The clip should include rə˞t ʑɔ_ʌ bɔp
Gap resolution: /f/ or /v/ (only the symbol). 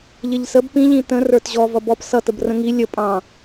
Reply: v